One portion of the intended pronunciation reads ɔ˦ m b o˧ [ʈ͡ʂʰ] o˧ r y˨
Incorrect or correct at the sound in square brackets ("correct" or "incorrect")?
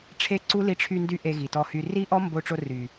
incorrect